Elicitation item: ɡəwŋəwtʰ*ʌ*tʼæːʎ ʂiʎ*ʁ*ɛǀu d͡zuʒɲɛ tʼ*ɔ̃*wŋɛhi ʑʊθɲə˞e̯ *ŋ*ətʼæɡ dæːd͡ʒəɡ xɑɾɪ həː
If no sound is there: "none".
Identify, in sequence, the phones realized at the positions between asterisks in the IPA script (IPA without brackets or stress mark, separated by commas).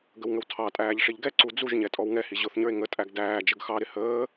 ɑ, ɡ, ɔ, ŋ